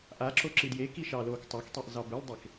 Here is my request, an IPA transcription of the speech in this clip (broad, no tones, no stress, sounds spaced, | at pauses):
ʔ a ǁ o ǁ ɨ d j e k i ʃ ɑː l oː k tˤ ɑ k tˤ e ʔ z ɑ b ə l dˤ e k